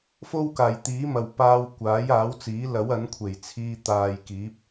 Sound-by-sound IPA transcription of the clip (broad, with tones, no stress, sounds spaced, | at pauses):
f o˥ w k aː˨˩ j t̪ iː˨˥ m ɐ˨˩ w p aː˧ w kʷ aː˨˥ j aː˨˥ w t͡s iː˨˥ l ɐ˨˥ w ɐ˨˥ n kʷʰ e˨˩ j t͡sʰ iː˧ t̪ aː˨ j k iː˨˥ p̚